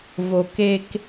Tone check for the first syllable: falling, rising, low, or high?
low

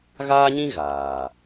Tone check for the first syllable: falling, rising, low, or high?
high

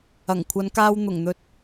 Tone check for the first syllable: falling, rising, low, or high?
low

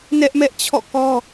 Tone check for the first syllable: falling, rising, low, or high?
high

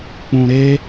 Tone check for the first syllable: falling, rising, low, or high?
low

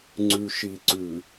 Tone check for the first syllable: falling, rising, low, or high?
low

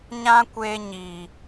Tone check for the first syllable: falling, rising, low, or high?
high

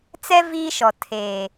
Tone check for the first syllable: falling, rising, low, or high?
high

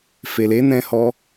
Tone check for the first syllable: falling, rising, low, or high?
low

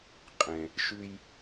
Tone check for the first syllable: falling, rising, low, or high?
low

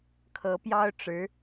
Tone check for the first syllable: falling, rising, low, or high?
rising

